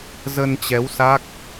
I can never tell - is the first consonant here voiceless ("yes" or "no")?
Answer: no